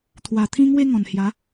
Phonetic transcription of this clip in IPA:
t̪ʰ w a˨˩ t̪ʰ ĩ˧ ŋ w e˧ ŋ ɔ̃˨˩ n h j a˨˦

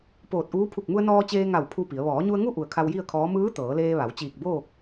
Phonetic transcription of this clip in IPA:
p oː˧˩ t̚ ʔ uː˧˥ pʰ u˧˩ k̚ m u˧ ə̯ n ɔː˧ t͡ɕ eː˧ ŋ a˧˩ w pʰ u˥˨ p i˩˧ ə̯ ʋ ɔː˩˧ ɲ u˧ ə̯ ŋ u˥˨ ʔ u˧˩ ə̯ kʰ a˧ w j i˥˨ ə̯ kʰ ɔː˧˥ m ɯː˧˥ t̪ ɤː˩˧ l eː˧ ʋ a˩˧ w t͡ɕ iː˧˩ k̚ b oː˥˨ k̚

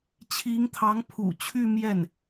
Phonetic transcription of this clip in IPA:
t͡ɕʰ i˧˥ ŋ t̪ʰ ɑ˧˥ ŋ pʰ ṵ˨˩ t͡ɕʰ y˥˧ m j ɛ˥˩ n

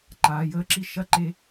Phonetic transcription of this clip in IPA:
ǃ aː˨ j əː˦ ǁ i˦ ʃ ɐ˦˨ ǃ e˦

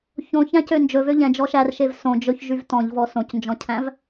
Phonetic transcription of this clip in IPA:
ç õ ç æ̃ c ø n d͡ʒ ɵ v ø ʎ ɛ̃ d͡ʒ ɔ ʃ æ r ʃ e v s õ d͡ʒ ɵ ç ʒ y v t ɔ̃ ʎ v ɔ s õ c n d͡ʒ ɔ̃ cʰ æ̃ v

